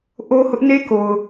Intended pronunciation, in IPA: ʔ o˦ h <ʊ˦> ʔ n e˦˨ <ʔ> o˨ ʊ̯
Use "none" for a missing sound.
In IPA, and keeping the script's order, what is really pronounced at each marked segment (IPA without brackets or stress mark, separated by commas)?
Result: ʊ˦, k